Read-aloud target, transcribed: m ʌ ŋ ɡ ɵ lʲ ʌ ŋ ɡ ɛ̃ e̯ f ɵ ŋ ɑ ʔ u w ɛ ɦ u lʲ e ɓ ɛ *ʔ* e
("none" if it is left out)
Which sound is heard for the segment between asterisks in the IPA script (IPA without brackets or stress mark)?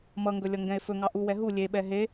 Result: ɦ